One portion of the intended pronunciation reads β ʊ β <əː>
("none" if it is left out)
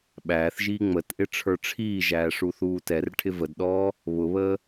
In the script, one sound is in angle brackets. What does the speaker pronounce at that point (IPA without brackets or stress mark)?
əː